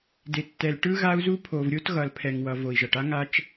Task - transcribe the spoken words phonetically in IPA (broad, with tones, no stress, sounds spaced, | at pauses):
d e˨ tː ɛ˨ l ʈ ɯ˦ ɣ a˦ u̯ z u˦ pʰ o˨ v ɾʲ o˦ t ɣ ʌ˨ l pʰ ɛ˨ ŋ w ʌ˨ v o˨ i̯ ʒ ʌ˨ ʈ a˦ ŋ a˦ t͡ʃ